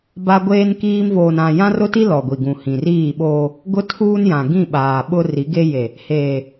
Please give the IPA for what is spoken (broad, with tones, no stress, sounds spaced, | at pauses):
b a˦ ɡʷ eː˦ n k iː˦ m v oː˨ n ã˨ j ã˦ r ʊ˦ t i˦ l ɔ˨ ɡʷ i˨ ɡ ũ˨ h ĩ˨ r iː˦˨ ɓ oː˦ | ɡ ʊ˦ tʰ uː˦ n j ã˨ ɡ ĩ˦˨ ɓ aː˨ ɓ ʊ˦ r i˨˦ ɡ e˦ j e˨ | h eː˨